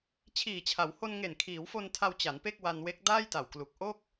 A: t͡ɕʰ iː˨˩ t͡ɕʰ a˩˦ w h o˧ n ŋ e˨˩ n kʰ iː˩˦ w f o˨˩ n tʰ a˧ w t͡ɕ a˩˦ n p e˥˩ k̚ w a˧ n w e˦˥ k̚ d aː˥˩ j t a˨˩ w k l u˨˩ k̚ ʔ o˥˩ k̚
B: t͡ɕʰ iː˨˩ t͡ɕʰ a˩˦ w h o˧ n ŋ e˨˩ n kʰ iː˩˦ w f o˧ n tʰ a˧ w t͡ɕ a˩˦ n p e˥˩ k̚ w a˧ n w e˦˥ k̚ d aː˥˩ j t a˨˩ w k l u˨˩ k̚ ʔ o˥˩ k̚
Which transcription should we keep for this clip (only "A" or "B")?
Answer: B